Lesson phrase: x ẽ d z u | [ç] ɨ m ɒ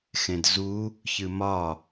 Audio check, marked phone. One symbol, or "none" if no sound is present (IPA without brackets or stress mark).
ç